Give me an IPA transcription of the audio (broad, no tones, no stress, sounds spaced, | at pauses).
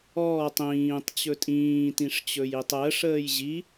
ɔː tˤ ĩː tˤ t͡ɕ ɵ tʼ ĩː t ĩ ʂ t͡ɕ ɵ j i tˤ əː ʂ əː j ʑ i